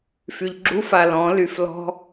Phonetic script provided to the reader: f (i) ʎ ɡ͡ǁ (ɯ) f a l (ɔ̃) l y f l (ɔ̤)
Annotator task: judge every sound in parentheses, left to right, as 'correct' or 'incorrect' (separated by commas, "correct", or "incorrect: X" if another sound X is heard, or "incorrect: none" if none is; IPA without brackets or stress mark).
incorrect: y, incorrect: u, correct, correct